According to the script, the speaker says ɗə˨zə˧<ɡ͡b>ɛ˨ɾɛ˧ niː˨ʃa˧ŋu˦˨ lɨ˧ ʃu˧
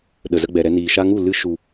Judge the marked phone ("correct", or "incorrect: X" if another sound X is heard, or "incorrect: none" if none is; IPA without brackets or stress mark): correct